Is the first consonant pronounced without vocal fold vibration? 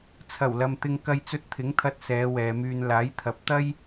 yes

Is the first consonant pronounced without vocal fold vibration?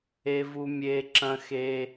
no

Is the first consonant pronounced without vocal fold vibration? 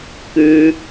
yes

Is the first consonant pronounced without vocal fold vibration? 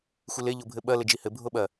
yes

